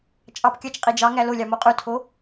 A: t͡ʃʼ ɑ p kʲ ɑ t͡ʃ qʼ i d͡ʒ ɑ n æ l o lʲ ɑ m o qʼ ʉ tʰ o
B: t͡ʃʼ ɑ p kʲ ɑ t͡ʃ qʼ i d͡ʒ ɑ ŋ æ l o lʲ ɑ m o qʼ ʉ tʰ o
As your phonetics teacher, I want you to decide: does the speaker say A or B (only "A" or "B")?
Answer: B